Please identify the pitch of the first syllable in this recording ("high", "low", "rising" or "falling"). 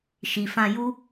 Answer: low